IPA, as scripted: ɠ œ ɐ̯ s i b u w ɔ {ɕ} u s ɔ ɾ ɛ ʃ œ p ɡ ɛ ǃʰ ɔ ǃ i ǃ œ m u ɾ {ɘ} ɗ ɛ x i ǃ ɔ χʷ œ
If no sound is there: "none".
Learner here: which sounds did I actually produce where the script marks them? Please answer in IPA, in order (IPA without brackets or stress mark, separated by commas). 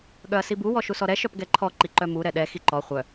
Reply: ʃ, ɛ